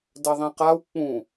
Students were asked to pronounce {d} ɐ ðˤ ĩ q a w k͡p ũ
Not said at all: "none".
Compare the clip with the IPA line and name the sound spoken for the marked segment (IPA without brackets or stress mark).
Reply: d